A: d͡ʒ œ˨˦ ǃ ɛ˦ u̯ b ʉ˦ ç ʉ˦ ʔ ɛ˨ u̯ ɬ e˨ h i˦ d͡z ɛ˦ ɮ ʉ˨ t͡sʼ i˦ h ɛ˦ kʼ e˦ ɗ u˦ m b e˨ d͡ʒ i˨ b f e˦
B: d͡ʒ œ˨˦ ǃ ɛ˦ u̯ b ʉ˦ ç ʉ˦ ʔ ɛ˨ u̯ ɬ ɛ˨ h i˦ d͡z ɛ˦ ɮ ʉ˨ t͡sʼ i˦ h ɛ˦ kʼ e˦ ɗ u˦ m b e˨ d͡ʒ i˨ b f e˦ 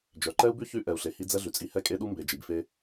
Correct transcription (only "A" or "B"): A